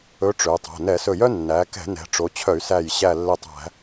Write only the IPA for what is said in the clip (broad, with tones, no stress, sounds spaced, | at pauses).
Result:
ɵ˧˥ ʈ͡ʂ ø˩˧ tˤ o̤˩˧˩ n ɛ˧˩˧ s ɵ˧˩ j œ˥ nː æ˩˧ k ɛ̤˧˩˧ n ɛ̤˩˧ ʈ͡ʂ o˩˧ t͡ɕʰ œ˧˩˧ y̯ s æ˧˩ j ɕ æ˧˩ lː ɛ˧˩ tˤ æ̤˧˩˧